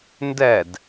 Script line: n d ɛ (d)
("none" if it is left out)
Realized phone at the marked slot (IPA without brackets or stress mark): d